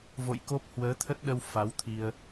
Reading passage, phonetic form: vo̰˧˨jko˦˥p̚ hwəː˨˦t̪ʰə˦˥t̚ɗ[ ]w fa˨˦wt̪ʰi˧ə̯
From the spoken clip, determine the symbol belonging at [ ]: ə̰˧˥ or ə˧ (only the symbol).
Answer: ə˧